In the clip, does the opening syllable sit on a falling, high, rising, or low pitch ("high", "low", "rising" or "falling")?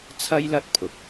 high